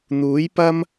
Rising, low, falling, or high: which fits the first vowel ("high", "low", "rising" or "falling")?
rising